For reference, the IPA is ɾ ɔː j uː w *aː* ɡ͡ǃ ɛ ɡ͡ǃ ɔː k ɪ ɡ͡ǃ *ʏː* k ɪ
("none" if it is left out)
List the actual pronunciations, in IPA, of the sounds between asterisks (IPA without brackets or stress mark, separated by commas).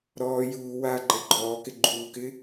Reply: aː, uː